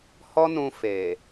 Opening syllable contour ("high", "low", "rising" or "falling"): high